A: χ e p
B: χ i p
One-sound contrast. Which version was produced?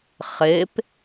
A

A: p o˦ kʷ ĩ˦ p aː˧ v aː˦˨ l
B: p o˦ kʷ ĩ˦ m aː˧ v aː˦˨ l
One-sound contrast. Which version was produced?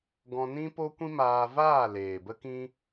B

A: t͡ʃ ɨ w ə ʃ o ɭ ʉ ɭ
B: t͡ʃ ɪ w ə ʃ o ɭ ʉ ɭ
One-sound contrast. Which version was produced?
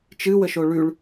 A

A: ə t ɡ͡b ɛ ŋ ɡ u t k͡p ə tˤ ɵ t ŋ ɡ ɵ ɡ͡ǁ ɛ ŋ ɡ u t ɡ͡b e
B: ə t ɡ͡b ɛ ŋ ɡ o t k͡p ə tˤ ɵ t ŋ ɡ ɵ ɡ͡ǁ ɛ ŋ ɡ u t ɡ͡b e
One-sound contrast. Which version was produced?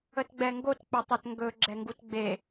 B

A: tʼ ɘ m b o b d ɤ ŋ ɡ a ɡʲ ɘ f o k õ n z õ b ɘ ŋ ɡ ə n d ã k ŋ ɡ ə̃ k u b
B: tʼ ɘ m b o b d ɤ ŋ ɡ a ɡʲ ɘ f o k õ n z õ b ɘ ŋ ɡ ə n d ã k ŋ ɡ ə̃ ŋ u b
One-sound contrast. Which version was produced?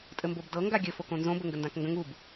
B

